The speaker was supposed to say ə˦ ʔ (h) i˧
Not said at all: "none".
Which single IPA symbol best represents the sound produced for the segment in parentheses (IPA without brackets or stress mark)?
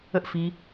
f